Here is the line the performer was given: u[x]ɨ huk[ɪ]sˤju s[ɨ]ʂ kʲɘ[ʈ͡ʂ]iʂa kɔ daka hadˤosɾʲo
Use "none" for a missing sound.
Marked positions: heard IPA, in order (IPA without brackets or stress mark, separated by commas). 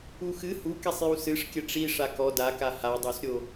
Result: x, ɛ, ɨ, ʈ͡ʂ